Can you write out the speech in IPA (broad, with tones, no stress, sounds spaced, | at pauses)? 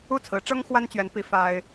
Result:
u˥˩ t͡sʰ ɹ̩˧˥ ʈ͡ʂ ɤ˥ ŋ x w a˥ n t͡ɕ ɥ ɛ˧˥ n p i˧˥ f a˥ ɪ̯